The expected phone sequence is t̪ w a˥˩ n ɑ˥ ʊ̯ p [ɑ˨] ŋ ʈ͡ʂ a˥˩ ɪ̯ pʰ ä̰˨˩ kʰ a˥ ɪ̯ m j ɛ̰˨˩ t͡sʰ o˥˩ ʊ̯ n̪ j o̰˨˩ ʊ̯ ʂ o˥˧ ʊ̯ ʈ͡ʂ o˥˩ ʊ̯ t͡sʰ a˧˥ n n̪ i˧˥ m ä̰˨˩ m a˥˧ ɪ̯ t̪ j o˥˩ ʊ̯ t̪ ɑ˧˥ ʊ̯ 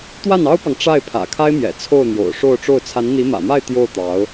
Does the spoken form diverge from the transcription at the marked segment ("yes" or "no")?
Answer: no